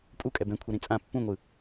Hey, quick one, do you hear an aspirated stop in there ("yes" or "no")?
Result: yes